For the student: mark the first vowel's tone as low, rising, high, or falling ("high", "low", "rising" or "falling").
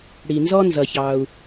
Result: low